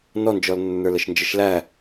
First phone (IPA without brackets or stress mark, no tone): n